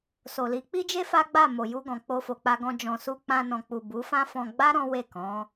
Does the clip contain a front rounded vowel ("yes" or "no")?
no